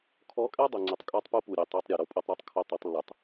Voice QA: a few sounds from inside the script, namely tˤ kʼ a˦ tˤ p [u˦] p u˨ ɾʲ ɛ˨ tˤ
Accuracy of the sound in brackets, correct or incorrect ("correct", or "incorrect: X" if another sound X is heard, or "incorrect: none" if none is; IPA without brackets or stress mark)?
correct